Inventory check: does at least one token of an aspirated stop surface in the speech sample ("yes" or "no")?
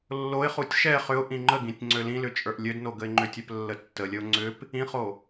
no